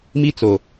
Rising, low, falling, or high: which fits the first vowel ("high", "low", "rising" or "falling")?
high